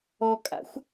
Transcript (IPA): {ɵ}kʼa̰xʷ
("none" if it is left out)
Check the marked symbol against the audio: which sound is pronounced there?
ɔ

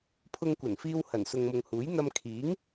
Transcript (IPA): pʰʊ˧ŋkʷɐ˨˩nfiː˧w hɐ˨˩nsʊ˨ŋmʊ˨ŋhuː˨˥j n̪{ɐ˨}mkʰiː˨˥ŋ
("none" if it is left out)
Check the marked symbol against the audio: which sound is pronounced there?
ɐ˧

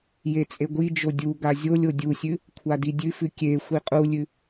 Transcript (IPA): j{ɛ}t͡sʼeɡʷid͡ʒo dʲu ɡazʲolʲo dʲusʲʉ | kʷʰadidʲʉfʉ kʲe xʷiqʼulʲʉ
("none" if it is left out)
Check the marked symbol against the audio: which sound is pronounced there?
e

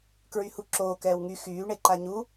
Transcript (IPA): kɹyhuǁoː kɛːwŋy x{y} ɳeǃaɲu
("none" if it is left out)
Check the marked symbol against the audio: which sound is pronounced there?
yː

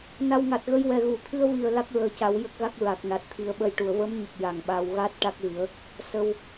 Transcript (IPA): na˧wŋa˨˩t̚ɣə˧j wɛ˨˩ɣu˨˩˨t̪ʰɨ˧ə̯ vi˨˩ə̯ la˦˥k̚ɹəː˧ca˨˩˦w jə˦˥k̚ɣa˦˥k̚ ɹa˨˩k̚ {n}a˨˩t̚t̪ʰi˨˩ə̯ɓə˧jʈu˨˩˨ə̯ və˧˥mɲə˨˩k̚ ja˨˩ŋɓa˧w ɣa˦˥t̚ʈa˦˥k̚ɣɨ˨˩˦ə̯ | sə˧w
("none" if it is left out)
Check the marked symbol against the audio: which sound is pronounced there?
n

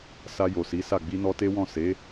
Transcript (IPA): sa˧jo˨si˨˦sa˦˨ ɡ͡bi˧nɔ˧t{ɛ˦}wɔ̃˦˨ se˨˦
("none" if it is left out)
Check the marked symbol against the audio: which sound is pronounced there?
e˦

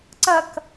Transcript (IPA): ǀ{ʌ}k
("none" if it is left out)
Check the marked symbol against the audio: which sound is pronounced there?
ʌ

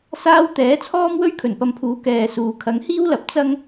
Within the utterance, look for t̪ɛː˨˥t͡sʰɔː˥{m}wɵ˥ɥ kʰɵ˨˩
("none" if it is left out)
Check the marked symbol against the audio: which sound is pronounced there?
m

